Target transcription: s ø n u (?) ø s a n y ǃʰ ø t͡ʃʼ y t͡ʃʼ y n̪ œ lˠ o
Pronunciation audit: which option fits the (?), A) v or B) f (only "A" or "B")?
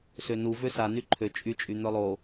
A